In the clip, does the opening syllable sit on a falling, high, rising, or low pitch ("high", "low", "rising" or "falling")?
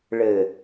low